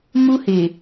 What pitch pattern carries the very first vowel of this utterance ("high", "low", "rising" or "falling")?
high